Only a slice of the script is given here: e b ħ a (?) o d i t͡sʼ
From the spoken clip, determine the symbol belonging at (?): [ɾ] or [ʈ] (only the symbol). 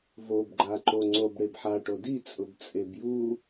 ʈ